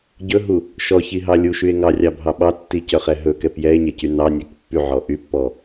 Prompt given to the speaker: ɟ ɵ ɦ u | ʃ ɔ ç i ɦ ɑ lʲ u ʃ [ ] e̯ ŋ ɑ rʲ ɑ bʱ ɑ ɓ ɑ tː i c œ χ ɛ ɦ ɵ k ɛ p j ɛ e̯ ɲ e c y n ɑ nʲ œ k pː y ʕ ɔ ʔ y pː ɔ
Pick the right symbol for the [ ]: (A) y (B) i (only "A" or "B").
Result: A